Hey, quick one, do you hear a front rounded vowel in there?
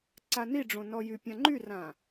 yes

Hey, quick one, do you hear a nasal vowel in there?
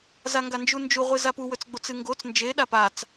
no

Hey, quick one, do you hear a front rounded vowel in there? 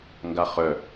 yes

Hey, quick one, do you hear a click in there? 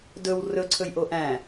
yes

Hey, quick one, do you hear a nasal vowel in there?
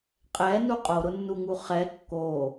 no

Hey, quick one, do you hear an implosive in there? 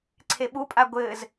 yes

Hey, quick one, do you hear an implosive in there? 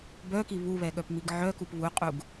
yes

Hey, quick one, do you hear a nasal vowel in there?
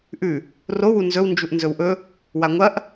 no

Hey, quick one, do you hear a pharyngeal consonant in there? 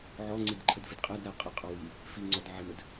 yes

